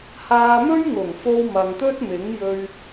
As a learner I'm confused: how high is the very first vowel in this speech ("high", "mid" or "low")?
low